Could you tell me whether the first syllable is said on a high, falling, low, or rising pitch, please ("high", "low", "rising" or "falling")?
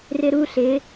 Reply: high